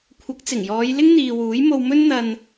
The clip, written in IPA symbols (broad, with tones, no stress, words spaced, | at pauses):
kʷʰɐ˨˥k̚t͡sɪ˨˩ŋjɔː˨˧j lɪ˥ŋn̪iː˨ wuː˨˥jmo˧w mɵ˥nn̪ɐ˧n